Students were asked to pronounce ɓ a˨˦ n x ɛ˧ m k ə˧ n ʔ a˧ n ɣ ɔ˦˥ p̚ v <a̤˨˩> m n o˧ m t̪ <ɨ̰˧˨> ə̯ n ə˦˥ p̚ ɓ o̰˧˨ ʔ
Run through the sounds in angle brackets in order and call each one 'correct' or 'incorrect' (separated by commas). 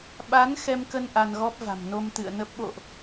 correct, correct